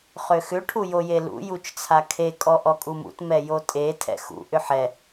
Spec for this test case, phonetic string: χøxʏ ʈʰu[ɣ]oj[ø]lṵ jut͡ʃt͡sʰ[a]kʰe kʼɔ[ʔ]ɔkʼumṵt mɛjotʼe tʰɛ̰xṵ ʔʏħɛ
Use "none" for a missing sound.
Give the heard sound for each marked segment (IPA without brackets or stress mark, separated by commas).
j, e, a, ʔ